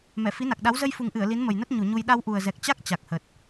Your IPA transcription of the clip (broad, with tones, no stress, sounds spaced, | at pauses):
m ɛ˧˩ f i˨˦ n a˨˩ k̚ ɗ a˨˦ w z ə˧ j f u˨˩ ŋ ʔ ɨ˧˩ ə̯ l i˨˦ n m ə˨˩ j n ə˦˥ t̚ ɲ u˧˩ ɲ u˧ j ɗ a˧ w ʔ u˨˩ ə̯ z ɛ˨˩ k̚ t͡ɕ a˦˥ k̚ t͡ɕ a˨˩ k̚ h ə˨˩ t̚